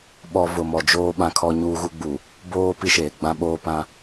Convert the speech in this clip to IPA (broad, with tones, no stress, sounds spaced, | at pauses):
ɓ ɔ˨ v ʊ˨ m ɔ˨ d͡ʒ oː˦ ɓ ã˨ kʰ ɔ˨ ɲ uː˦ ɣ u˦ ɡ͡b u˨ | b oː˦ p i˦ ʃ eː˨ ɡ͡b ã˦ ɓ oː˦ p ã˦